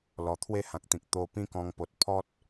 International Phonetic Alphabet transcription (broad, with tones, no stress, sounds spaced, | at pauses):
l ɔ˨˩ t̪ʰ w e˥˧ h ã˨ k̚ t̪ ĩ˨ k̚ t̪ o˧ p ĩ˥˧ k ɔ̃˧ ŋ p o˨ t̚ pʰ ɔ˦ t̚